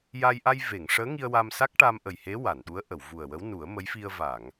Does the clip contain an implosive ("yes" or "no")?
yes